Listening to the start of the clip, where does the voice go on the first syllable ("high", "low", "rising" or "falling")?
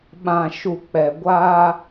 low